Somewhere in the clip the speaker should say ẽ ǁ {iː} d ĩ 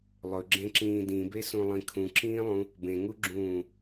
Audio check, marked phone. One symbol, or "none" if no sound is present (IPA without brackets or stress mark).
ĩː